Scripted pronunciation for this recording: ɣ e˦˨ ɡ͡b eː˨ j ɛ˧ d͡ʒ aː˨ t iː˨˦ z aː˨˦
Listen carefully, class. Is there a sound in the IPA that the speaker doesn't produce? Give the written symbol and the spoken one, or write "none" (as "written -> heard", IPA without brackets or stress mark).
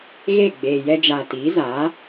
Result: none